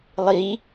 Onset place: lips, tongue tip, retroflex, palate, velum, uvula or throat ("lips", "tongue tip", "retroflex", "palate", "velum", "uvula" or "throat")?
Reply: tongue tip